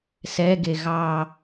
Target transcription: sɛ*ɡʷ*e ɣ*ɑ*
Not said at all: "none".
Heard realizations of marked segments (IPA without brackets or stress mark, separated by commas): ɡ, ɑ